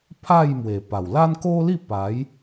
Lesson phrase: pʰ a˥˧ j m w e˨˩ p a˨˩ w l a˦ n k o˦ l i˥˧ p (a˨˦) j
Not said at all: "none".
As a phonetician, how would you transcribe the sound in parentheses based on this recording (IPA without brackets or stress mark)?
a˨˦